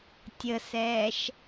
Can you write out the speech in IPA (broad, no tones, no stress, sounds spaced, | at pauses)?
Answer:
tʲ ə s ɛː ʃ